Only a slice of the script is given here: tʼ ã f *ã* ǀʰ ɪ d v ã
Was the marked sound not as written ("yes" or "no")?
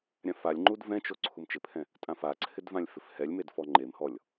yes